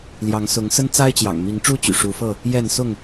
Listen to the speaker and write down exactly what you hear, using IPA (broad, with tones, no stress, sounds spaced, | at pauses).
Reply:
l j ɑ˨˦ ŋ s ʊ˨˦ ŋ s ə˦ n t͡s a˦ ɪ̯ t͡ɕ j ɑ̰˨˩ ŋ m i˨˦ ŋ ʈ͡ʂ u˦ t͡ɕ y̰˨˩ ʂ u˨˦ f ɤ˥˨ | j ɛ˥˨ n s ʊ˥˨ ŋ